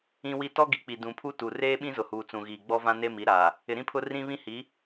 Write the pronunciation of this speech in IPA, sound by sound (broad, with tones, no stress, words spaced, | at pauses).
ĩ˦wi˦ tɔ˦ɡi˨k͡pi˨ dũ˨pʰu˦tu˨ reː˦ ɓĩ˦zʊ˨huː˨ t͡sũ˨ɣiː˨ɡ͡bɔ˦vã˦ ne˦mi˨˦ ɾaː˨ | ɪ˨ ɾĩ˦pʰʊ˦ rĩ˦βĩ˦hi˨˦